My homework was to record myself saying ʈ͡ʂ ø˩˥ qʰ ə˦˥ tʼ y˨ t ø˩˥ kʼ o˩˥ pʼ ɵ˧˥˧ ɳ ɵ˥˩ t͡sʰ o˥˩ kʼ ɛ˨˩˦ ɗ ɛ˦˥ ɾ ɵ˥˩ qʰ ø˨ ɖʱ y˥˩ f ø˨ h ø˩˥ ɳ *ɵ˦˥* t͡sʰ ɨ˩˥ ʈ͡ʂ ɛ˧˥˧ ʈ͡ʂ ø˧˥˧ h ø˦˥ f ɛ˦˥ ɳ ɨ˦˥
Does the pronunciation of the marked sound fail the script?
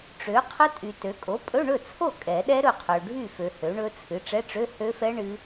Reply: no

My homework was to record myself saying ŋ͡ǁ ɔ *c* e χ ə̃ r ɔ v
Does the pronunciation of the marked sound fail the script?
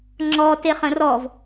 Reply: yes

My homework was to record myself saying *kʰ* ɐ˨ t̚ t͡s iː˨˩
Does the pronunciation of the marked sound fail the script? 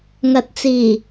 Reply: yes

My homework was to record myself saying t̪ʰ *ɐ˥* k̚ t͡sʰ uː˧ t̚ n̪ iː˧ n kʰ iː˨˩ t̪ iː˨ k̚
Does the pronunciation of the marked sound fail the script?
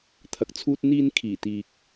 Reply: yes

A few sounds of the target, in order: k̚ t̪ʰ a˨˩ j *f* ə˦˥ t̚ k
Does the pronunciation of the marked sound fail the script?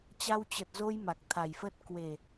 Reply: no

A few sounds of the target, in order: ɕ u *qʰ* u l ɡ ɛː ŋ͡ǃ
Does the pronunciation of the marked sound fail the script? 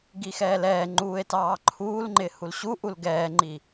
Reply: yes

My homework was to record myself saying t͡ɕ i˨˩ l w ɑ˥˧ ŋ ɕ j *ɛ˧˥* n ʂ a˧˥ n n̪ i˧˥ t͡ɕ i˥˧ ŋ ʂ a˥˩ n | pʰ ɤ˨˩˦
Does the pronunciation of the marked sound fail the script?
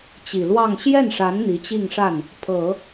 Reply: yes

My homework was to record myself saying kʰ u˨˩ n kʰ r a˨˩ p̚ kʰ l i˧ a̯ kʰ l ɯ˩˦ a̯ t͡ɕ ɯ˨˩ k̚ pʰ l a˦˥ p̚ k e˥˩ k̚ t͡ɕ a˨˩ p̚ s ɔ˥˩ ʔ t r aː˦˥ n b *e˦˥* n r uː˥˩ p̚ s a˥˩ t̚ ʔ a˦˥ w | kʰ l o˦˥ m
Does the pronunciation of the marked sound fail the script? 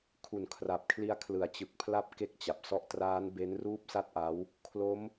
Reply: no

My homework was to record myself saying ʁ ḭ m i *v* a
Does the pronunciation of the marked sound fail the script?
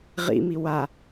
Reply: yes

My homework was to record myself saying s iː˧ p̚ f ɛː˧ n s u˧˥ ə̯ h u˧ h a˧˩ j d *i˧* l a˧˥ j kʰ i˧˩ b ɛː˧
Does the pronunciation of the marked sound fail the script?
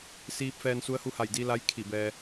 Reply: no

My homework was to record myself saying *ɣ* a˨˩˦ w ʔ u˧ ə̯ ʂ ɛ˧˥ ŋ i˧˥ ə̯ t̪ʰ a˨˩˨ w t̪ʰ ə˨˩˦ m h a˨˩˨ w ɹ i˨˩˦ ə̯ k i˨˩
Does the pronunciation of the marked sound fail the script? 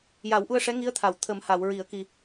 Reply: yes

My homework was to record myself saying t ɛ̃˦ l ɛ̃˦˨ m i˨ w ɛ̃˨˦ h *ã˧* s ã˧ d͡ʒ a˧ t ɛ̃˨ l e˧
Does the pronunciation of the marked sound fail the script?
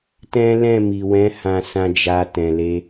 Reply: no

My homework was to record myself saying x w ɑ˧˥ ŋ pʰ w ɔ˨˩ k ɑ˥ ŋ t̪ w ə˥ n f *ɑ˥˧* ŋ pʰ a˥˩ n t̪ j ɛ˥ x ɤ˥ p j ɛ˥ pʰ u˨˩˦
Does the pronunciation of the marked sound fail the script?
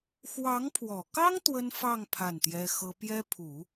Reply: no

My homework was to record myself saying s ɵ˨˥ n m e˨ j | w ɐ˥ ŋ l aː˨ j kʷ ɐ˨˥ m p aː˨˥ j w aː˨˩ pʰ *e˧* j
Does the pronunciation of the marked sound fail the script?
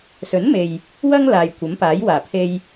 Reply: no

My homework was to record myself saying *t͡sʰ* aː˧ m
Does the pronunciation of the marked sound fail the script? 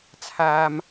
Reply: no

